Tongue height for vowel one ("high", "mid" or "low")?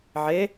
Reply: mid